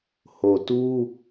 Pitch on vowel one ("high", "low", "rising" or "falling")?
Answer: low